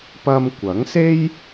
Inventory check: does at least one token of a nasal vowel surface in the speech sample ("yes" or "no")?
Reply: no